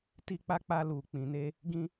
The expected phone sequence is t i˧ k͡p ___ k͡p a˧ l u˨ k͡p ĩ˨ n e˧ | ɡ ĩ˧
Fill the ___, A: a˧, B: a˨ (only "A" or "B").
A